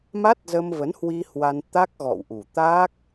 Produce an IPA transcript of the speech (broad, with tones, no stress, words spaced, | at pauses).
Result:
ma˦˥t̚zə˧mvə˨˦nhwi˧ hwa˧nt̪a˦˥k̚ ɣɔ̰˧˨wʔu˨˩ t̪a˦˥k̚